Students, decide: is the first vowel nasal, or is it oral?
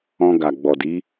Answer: nasal